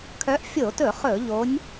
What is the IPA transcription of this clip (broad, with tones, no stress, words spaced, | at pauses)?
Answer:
kʰœ˨˦ʔfʲo˧˩˧tɵ˧˩˧ χɵ˧˩˧ʎo˨˦nʲ